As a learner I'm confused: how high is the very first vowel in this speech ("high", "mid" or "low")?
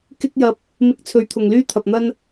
high